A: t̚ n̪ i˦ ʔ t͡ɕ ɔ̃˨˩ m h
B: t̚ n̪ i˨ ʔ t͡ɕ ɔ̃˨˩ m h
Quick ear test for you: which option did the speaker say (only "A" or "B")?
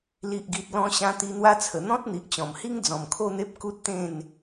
B